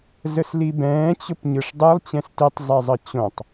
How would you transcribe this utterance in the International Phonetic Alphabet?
zəslibɛ̃ː t͡ɕʊpɲɯʂdˤɯlˠ t͡ɕɛ̃stitˤ zˤɛzˤət͡ɕõtˤ

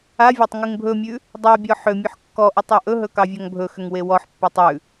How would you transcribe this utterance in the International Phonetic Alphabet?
avʲatˤ ŋʉŋbʱɵmʲʉ | dˤabʲɔ ħʏmʲɵħ kːɔʔʉtˤ ɑʔɵɦɵ kɑvʲɔŋbʱɵxʏŋ wewɔħpːɑtˤ ʉ

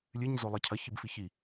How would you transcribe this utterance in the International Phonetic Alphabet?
lʲɨɲzolˠɘ cʰɐçibfi çi

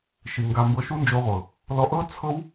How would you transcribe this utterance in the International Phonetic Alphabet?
ʃi˨ŋɡa˧mbɤ˧ ʃu˦nd͡ʒo˧ʁʷɤ˨ | lɔ˧ʔɤ˦ t͡sʰɤ˦w

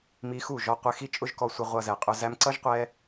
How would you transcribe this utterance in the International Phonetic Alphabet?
mi˧xu˦˨ʒɔ˧qʷɪ˧ xi˦t͡ʃʼʊ˦ʒkɔ˧ sʷə˧ ʁʷʌ˧zɛ˨qʼʊ˧ zæ˧mǀʌ˦ʒqʷɛ˧

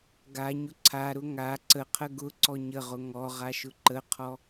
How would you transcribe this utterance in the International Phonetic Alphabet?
ɡaɲʊ ǀʰaɾʊ ŋa ǀəqʰə ɡʊǀɔ ɲəʁʊ ŋɔʁaʃʊ ǃəqʰɔ

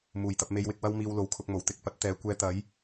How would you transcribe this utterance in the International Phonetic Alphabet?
muː˨˩jt̪ɐ˧p̚ me˧jwɪ˧k̚ wɐ˥wmiː˧w lo˨w kʰʊ˧k̚mo˨˩wt̪ɪ˧k̚ pɐ˨˥t̚t̪ɛː˨˧kʷɛː˧t̪ɐ˨˥j

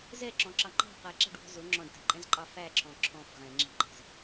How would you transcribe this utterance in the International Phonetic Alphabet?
zɛǁɔ̃ǁɑ ŋ͡ǃɑ̤ qɛǁɛ̤ɖwɔ̤ zʊ ŋ͡ǁɔ̃ɖtɛ̤ǃʼɛ̃zǃʼɑ fæǁʰɔ̃ ǁʰɔ̃f ʁɛ̃ ŋ͡ǁi̤ǃæ̤z

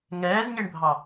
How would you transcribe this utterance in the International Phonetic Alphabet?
ŋɛːzɲeɳbʱɑ

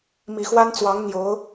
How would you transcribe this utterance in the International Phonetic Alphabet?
mi˨˩xwa˥nt͡swɑ˧˥ŋ n̪jo˧˥ʊ̯

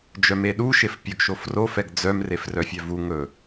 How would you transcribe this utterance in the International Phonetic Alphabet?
d͡ʒœmeɗu ʃefpʲɵɡ ʃofro fɛɡd͡zœm refrœfʲœvu ŋɵ

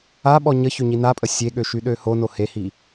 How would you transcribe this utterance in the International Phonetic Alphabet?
aɓɔ ɲəçøɲi napʼə sʲeɠøʃyɗø hono hehi

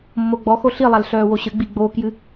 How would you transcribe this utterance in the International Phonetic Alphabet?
mːoɡ͡bɔxo ɬilˠal ɬœːwoɕɘɡ͡bi ɡ͡boːkjɨ

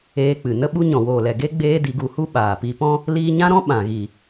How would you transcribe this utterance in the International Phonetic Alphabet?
eː˧k͡pɨ˨ nə˦ɓu˦ ɲɔ̃˨woː˨lɛ˨ ɡe˦ ɡ͡beː˦di˧ɡu˧hu˦ ɓaː˨pi˧pɔ̃˦ | liː˧ɲã˦ɾɔ̃˦ ɓã˨ɣi˨

